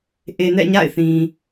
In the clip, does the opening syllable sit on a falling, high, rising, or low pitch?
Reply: low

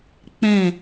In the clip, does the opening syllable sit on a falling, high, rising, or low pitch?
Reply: falling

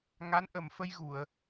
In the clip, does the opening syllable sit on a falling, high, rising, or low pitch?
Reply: rising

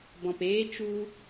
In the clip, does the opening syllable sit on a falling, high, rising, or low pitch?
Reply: low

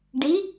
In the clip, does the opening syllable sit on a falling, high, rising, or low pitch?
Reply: rising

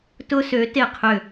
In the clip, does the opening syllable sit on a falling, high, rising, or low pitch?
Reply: high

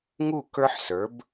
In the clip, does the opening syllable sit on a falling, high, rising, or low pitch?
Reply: falling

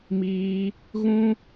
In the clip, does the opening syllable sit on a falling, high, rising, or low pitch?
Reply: high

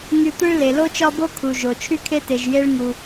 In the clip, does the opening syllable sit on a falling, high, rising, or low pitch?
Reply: low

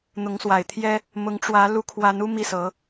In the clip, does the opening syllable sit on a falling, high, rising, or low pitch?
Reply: rising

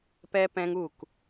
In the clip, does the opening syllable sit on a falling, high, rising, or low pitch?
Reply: high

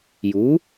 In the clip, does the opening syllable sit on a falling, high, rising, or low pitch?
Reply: rising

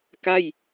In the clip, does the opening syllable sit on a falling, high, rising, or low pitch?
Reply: falling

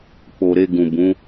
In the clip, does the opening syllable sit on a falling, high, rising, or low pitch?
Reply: low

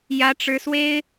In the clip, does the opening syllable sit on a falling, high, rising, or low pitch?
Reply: high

